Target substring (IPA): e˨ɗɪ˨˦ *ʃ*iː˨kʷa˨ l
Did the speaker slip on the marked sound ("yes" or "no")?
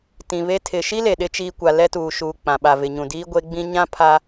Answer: yes